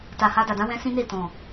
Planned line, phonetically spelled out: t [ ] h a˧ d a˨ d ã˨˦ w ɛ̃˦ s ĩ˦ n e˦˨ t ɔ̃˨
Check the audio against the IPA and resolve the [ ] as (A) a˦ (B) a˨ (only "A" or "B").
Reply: B